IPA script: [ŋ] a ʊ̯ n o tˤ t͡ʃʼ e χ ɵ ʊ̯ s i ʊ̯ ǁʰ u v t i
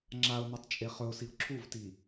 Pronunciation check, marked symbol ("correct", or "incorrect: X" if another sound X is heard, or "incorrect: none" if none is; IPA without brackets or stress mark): incorrect: ŋ͡ǁ